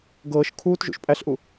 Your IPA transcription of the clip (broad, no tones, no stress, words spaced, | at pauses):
ɡɤːʃ kʰuːtʒṵʃ pʼæɬʔu